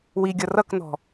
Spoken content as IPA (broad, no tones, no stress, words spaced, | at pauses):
wiɡʲʌ rʌknɔ̤